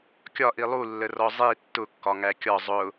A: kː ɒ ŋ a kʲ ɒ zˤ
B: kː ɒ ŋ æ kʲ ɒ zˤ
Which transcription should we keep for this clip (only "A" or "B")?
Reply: B